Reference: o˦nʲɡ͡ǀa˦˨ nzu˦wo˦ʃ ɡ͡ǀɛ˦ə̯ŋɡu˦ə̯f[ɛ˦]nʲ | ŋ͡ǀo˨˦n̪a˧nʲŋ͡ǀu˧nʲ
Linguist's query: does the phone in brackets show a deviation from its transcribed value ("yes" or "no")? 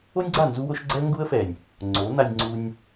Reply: yes